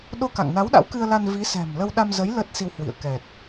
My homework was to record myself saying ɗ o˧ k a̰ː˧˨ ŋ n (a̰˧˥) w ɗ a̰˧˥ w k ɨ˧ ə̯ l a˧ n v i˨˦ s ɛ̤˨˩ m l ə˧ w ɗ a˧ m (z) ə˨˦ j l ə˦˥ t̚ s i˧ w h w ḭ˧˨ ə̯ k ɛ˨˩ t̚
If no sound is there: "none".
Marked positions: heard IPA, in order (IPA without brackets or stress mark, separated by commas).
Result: a˨˦, z